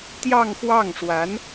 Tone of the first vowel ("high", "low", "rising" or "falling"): falling